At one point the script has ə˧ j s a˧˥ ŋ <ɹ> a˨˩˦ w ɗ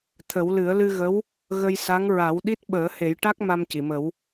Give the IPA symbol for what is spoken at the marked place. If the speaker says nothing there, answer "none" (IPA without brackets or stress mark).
ɹ